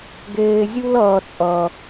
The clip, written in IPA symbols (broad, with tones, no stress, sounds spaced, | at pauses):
ɡ eː˨ zʲ u˦ l ʌː˨ t͡sʼ ʌ˨